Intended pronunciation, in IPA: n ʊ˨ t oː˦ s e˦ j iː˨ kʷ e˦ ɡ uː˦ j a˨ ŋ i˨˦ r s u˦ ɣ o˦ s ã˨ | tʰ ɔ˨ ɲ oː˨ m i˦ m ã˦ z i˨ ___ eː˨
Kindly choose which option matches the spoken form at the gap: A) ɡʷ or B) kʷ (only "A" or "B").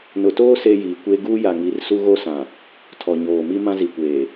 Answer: B